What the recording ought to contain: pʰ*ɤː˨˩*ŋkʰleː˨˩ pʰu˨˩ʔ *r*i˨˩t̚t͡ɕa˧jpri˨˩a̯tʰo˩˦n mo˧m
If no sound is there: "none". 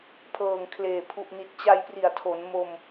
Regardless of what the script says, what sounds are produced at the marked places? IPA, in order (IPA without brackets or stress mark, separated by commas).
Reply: ɤː˨˩, n